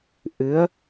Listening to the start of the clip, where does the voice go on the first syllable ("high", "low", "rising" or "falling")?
rising